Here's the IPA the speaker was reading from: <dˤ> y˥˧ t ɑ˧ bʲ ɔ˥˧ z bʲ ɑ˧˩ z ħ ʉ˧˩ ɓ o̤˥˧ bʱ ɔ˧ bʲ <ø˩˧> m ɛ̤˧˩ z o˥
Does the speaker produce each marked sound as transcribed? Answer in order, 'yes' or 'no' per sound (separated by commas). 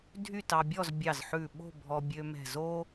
no, no